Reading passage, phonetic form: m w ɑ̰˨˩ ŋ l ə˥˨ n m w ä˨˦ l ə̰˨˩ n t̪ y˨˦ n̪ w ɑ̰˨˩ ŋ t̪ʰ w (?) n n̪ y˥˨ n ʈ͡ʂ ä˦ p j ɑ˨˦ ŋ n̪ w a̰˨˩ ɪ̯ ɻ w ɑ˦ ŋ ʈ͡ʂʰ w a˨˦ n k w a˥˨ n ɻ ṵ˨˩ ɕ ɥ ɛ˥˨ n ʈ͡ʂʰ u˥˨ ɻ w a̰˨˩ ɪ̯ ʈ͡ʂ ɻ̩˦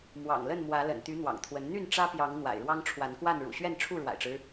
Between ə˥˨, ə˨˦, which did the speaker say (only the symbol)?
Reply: ə˨˦